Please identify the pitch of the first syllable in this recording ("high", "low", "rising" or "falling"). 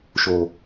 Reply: low